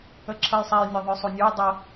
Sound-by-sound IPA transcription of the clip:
əǁʰəjsˤɛj nʲaðˤə˞sˤonʲə˞j dˤə

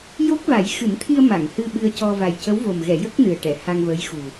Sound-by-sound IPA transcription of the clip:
jo˦˥k̚va˨˩˦j xɨ˨˩˦nt̪ʰi˧ə̯ ma˨˩˨ŋhɨ˧ ɓɨ˧ə̯cɔ˧ va˨˩jcə˧˥wvo˨˩m ɣɛ˨˩˨ jə˦˥k̚ nɨ˨˩ə̯ʈɛ˨˩˨ ha˧ŋvəː˧˥jxu˨˩

